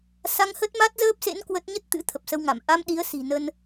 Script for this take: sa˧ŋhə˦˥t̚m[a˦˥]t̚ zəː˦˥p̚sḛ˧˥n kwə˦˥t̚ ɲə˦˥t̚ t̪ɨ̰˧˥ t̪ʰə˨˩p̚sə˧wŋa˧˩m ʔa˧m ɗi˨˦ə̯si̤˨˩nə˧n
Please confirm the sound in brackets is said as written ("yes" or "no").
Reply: yes